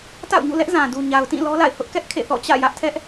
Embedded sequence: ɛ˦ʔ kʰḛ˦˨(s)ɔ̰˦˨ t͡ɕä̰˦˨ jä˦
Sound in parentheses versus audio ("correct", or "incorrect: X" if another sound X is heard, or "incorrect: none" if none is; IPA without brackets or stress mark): incorrect: θ